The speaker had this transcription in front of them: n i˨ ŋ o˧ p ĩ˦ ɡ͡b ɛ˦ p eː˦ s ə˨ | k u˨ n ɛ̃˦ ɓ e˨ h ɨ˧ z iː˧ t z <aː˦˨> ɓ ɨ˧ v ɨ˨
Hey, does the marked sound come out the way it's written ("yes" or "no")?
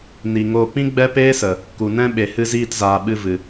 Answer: no